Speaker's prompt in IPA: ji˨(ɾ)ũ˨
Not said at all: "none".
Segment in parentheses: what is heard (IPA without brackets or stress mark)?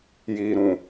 ɾ